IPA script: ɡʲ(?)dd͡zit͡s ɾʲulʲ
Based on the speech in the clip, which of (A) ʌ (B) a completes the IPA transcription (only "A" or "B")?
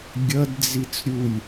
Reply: A